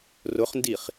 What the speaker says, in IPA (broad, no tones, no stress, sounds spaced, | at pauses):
r ʊ χ n d i χ